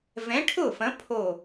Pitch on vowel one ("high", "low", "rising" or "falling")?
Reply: rising